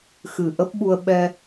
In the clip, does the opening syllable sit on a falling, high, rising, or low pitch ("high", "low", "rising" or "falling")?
low